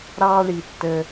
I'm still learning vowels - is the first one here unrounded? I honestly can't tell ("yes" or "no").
yes